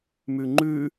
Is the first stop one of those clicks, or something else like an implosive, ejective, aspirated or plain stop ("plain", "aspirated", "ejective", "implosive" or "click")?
click